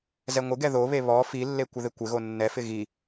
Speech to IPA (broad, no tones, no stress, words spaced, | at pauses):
zɛŋʷɪɡɛ ðoβe βɔ filːe kʷəðɪkʷɪɣo nːɛfɪ ɣi